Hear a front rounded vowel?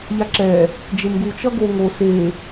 no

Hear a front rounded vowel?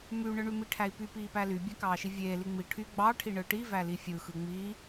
yes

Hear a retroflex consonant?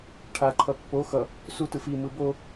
yes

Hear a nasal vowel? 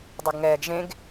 yes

